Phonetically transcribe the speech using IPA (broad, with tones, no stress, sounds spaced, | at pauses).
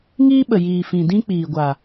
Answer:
ŋ iː˦ ɓ ə˨ j iː˨ f ĩ˨ d ĩ˦ k͡p iː˨ ɡʷ a˨